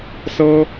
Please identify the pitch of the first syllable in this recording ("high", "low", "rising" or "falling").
high